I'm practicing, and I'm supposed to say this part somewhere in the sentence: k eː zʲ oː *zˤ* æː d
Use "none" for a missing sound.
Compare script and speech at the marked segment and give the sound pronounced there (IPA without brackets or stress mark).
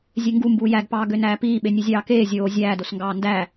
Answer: zʲ